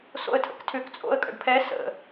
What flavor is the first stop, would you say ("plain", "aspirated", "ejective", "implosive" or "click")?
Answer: aspirated